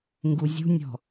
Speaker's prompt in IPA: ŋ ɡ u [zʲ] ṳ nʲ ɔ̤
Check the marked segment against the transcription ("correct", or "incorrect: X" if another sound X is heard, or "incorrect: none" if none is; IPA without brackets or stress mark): correct